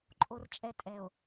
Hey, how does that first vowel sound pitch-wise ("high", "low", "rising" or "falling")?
low